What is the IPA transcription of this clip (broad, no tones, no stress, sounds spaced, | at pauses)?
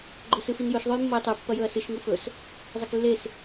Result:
ɡ͡ǃ ɵ s ɨ f i n j ɵ ʃ ðˤ o j mː o j tˤ ʉ pː ɐ j ɵ ɐ̯ s ɨ ʃ ŋ u f ɵ s | zˤ e k lː e s